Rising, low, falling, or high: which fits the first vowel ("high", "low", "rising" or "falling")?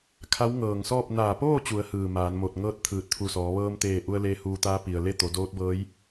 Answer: rising